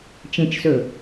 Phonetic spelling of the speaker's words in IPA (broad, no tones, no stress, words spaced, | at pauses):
t͡ʃẽt͡ʃsɵ